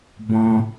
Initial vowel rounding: rounded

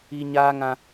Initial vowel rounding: unrounded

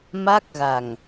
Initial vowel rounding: unrounded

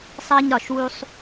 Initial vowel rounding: unrounded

